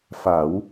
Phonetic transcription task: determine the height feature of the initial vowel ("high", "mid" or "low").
low